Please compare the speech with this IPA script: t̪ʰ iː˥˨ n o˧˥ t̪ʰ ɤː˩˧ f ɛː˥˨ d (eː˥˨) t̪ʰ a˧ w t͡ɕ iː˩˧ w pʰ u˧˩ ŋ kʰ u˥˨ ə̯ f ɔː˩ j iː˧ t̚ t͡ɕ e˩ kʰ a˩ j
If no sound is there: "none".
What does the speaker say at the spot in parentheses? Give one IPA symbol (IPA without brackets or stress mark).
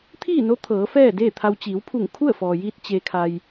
eː˥˨